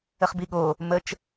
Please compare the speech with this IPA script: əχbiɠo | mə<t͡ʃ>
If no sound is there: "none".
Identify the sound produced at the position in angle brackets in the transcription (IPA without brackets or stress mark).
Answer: t͡ʃ